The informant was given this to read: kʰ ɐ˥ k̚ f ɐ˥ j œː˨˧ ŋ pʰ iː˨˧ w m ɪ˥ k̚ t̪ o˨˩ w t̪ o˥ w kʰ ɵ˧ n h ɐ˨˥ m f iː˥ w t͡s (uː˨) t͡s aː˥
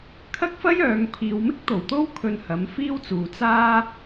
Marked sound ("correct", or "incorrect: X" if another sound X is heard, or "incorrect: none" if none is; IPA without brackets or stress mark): correct